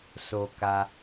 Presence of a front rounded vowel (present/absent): absent